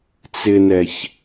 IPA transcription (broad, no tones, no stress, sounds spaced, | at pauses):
t͡s ɪ n ɛ ç